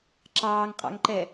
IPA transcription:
ǁ ɑː ŋ qʼ ɑ̰ ŋ ǃ ɛ

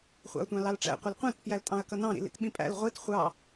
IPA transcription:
χʷ ɑ̰ ɐ̯ tʷ ɑ̃ l ɑ l ʈ͡ʂ æ̰ qʷ ɪ l qʷ æ̃ t p j æ l tʼ ɑ̃ ɐ̯ k ʌ n ɑ̃ ɾ ḭ l ḭ t ɓ ĩ pʼ æ̰ l ʁʷ i t χʷ ɑ

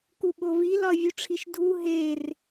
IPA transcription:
k u ɓ o v i l ɒ ə̯ vʲ u ʈ͡ʂʰ i ʃ dʱ u ɦ e r

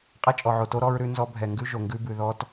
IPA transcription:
qʼ ɛ˦ t͡ʃʼ ɔ˨ ʕ o˨ t o˦ ɾ ɔ˦ ɹ ɾ ʉ˦ n z ɔ˦ bʱ ɛ˨ ŋ ɡ ʉ˦ ʒ o˨ ŋ ɡ ʉ˦ b ʉ˨ ð ɔ˦ t

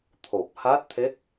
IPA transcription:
t̪ʰ o˨˩ p̚ h a˦˥ t̚ t̪ʰ e˦˥ k̚

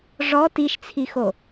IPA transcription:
ʐ ɔ t i ʃ t͡sʰ i x o

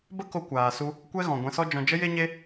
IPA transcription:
b ə˦ k o˧ kʷ aː˨ s u˧ | kʷ ɛ˦ ɣ ɔ̃˨ ɡʷ ɛ̃˧ s ɔ˦ d͡ʒ ɔ̃˧ d͡ʒ ə˦ j e˦ ɲ e˦

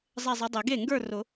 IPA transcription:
zˤ ɛ˥˧ zˤ ɨ˨˥ dˤ e˨˩˦ ɡ e˥˩ ŋ ɡ ə˞˥˧ r ʊ˨˩˦

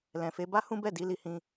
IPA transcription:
l ɛ̃˨ f e˨˦ b a˦ h ũ˦ b ɛ˦˨ d i˨˦ l i˧ h ĩ˧

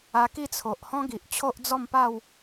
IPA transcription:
a˧ k i˥˧ t͡sʰ o˨ ʔ h ɔ̃˦ ɡ i˨ ʔ t͡ɕʰ o˦ ʔ d͡z ɔ˥˧ m p a˥˧ w

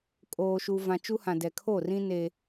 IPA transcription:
kʼ oː˨ ʃ u˨ v ã˨ t͡ʃ u˦ h ã˨ d ɛ˨ kʰ o˦˨ r ĩ˦ n e˦

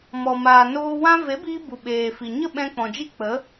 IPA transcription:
m ɔ˨ m aː˨ n oː˧ w ã˦ v e˨˦ b iː˧ b u˨ ɓ eː˨ f i˨ ɲ ə˦˨ ɓ ɛ̃˧ k͡p ɔ̃˨ d͡ʒ i˦ k͡p ə˨˦

